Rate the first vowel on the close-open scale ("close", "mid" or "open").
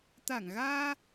open